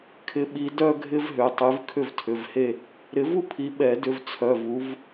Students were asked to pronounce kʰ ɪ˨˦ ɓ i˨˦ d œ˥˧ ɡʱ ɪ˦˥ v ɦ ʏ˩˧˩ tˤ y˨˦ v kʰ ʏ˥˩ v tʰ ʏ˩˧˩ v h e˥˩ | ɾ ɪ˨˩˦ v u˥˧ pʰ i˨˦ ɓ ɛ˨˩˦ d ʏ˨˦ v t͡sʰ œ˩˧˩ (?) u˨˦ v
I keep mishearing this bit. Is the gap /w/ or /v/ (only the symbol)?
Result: v